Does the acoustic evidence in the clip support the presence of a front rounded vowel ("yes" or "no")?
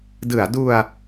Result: no